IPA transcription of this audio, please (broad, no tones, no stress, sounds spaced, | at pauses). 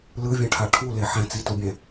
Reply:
l ɯ vʲ ɛ̃ ʈʰ a ʈʰ u l e ħ ɛ̃ t͡s i t u bʲ ɛ̃